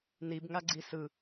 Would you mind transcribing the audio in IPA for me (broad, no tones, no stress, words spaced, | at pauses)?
nibŋaɡ͡ǀi sɯ